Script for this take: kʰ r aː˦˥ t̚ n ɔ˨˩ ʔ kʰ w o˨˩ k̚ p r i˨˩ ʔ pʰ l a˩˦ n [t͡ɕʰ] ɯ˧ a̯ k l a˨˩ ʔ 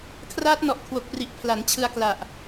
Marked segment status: correct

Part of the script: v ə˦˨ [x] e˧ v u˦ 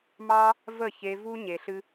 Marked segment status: incorrect: ç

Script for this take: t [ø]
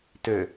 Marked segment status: correct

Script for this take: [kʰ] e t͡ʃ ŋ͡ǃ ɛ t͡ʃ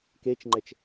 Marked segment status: incorrect: k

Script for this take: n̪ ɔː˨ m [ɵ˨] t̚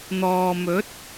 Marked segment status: incorrect: ɵ˨˥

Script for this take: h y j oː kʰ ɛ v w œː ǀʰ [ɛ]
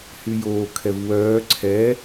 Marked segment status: correct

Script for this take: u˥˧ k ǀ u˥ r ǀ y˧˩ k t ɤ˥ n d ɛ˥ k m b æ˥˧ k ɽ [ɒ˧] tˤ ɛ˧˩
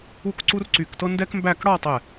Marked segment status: incorrect: ɒ˥˧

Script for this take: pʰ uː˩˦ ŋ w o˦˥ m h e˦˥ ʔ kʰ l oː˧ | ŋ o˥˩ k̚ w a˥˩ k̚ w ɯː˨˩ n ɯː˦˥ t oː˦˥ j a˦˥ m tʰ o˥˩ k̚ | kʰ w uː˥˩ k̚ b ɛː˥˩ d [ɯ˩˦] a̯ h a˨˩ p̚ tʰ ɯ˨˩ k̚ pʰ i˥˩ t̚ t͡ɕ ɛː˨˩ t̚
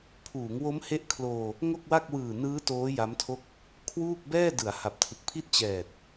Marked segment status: correct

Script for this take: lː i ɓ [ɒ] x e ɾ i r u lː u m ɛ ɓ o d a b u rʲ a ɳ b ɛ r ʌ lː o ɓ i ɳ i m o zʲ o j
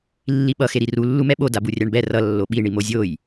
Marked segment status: incorrect: ʌ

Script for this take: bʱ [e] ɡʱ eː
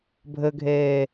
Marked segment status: incorrect: ɘ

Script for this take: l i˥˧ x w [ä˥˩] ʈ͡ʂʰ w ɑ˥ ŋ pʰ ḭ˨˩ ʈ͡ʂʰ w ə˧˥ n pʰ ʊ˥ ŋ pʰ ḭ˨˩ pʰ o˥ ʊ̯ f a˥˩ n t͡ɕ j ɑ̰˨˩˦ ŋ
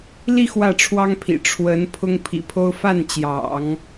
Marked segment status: correct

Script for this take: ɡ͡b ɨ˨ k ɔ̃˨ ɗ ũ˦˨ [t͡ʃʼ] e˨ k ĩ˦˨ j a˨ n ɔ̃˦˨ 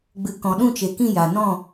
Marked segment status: incorrect: t͡ʃ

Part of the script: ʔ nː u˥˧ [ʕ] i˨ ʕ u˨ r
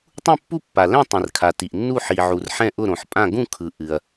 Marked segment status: incorrect: ħ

